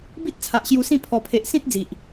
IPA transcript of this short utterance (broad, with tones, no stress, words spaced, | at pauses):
bi˦t̚t͡sʰa˨ʔ ɕju˧sĩ˥˧ pʰɔ˨˩pʰe˨ʔsĩ˦t̚ d͡zi˨ʔ